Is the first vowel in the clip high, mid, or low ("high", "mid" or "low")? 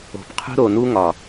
mid